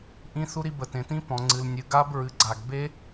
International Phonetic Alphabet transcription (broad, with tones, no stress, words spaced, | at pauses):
ʔĩ˥θu˥ɾi˥ bə˩tẽ˩tĩ˥ pɔ̃˩ŋ͡ǀɨ˩l nʲɨ˩ ɡa˥bɹɨ˩ ɡ͡ǀa˩ɡ be˥